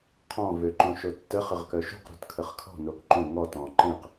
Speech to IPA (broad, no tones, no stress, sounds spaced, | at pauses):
qʰ ɔ̃ v ø ǃ õ ʃ o tː ə χ ə ʁ k œ ʃ ṳ q ɾ ṳ t kʰ ə χ kʰ ɔ̤ n o k ǃ õ ŋ ɔ t ɔ̃ ǃ ẽ q